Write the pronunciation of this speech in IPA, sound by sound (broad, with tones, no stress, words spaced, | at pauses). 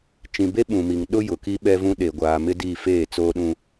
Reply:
t͡ʃĩ˨be˦ɓũ˨mi˨ŋ ɗʊ˦ jʊ˨ki˦ ɓɛ˦vũ˦ ɗe˨ɡʷaː˨mɪ˦di˦˨ feː˦˨t͡soː˦ɗũ˦